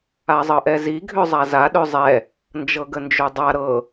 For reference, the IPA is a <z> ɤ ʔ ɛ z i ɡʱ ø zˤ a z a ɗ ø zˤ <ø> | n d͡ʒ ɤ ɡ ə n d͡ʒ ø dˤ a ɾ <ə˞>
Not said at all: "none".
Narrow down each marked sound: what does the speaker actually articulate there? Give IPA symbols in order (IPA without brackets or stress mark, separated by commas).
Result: zˤ, ɛ, ɤ